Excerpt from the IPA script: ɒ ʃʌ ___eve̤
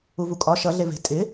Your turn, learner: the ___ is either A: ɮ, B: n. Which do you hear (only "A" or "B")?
A